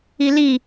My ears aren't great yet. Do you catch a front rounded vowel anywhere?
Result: no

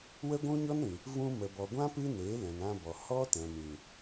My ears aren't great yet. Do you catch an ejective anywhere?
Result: no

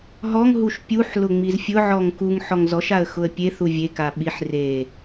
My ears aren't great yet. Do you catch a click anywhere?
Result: no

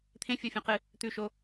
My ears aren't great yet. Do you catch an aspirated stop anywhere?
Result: yes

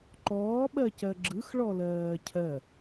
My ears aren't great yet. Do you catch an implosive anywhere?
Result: yes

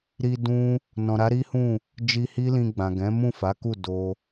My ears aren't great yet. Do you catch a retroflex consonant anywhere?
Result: no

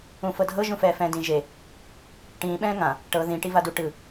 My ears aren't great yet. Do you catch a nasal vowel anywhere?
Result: yes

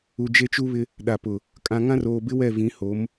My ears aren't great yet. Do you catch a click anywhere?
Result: no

